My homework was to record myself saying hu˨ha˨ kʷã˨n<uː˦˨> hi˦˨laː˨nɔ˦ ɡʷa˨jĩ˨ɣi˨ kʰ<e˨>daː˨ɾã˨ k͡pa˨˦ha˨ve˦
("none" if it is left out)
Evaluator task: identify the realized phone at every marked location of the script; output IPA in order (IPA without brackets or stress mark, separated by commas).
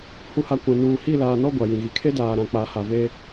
uː˨, e˦